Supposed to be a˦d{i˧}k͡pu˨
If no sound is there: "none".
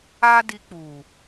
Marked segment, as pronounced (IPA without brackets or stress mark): i˧